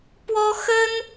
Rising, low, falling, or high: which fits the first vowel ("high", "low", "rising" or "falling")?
high